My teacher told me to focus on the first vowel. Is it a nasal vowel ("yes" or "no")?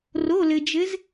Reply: no